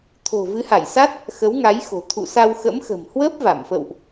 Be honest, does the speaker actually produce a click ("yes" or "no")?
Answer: no